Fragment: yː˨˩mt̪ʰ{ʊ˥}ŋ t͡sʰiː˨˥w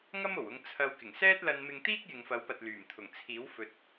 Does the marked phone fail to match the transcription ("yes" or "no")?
yes